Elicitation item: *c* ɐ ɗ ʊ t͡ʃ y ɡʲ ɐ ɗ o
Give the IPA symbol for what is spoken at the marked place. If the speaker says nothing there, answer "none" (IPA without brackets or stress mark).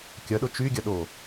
kʲ